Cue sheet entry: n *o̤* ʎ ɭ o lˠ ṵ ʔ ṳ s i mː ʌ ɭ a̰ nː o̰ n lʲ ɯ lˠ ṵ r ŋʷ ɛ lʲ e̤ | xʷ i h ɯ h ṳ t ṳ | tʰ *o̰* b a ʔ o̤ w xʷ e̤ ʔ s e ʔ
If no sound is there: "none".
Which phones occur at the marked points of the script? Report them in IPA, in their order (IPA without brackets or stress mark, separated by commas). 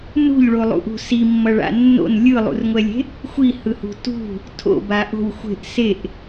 ṳ, o̰